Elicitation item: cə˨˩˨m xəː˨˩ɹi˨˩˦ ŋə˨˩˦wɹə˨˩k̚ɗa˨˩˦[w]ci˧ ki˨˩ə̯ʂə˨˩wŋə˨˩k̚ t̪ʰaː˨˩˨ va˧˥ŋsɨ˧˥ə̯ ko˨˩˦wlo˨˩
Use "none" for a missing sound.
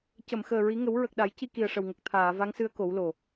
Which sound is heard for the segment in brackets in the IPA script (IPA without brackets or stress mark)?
j